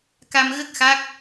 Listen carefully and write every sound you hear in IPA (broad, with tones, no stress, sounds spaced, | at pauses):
k a˧ m ɣ ə˦˥ k̚ x a˦˥ k̚